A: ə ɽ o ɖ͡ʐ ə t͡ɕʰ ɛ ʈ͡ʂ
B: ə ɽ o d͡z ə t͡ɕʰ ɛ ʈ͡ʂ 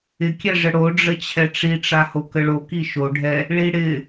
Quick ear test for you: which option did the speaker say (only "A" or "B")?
A